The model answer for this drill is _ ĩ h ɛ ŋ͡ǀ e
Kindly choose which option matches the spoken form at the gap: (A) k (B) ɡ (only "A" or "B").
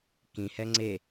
A